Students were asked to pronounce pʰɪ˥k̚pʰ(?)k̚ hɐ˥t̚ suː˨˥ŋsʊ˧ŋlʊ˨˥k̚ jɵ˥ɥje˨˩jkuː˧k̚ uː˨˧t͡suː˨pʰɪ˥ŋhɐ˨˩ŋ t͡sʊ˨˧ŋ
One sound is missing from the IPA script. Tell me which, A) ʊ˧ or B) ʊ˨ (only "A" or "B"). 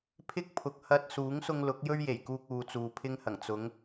B